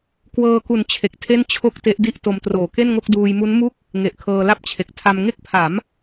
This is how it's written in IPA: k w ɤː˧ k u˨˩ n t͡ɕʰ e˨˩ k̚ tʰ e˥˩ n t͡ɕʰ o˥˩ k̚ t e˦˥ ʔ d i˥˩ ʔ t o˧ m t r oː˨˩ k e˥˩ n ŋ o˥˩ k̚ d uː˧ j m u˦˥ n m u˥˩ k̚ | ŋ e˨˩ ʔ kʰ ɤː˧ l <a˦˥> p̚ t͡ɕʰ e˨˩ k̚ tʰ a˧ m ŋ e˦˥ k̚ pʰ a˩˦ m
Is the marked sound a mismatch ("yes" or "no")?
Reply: yes